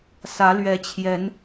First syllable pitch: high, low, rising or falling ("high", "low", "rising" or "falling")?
rising